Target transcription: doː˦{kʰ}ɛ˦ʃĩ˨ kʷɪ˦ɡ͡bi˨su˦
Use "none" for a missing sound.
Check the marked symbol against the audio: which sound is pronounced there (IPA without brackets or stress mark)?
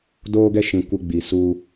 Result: ɡ